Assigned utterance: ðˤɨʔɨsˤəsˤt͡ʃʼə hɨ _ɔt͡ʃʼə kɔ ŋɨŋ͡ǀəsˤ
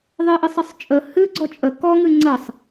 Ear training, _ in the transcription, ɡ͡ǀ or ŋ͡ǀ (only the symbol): ɡ͡ǀ